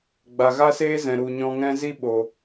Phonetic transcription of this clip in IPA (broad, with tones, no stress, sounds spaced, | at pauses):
ɡ͡b a˨ ɣ a˦ s eː˦ z ɛ̃˨ ɾ u˨ ɲ ɔ̃˧ ŋ ɛ̃˦ z i˦ ɓ o˨